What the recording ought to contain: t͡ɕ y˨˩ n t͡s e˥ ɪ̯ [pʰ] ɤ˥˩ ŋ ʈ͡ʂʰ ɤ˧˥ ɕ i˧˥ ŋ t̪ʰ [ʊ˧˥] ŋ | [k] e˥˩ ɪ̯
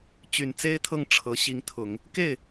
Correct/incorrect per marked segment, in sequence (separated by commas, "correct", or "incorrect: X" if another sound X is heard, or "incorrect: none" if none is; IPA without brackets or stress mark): incorrect: t̪ʰ, incorrect: ʊ˨˩˦, correct